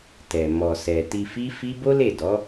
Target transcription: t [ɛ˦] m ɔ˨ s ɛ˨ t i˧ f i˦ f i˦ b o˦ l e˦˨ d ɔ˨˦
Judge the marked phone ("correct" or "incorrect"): incorrect